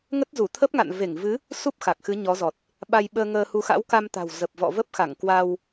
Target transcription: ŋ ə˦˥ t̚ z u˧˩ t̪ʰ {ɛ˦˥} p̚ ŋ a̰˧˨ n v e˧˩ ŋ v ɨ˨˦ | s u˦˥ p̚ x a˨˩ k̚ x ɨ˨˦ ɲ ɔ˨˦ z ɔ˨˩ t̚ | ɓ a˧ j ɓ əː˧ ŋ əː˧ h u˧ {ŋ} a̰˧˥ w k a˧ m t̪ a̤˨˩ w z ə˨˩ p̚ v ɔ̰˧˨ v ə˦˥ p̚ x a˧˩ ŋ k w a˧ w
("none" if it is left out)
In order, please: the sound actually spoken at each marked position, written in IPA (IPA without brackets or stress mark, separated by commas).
ə˦˥, x